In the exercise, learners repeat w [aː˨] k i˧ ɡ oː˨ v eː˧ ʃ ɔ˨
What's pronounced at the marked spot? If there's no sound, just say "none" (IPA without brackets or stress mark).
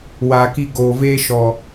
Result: aː˨